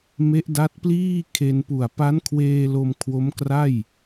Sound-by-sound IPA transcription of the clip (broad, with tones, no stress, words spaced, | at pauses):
me˦˥ʔda˦˥t̚pliː˥˩ kʰe˧n pu˨˩a̯pa˦˥nkʰweː˧ lo˧mkʰwo˦˥mkra˥˩j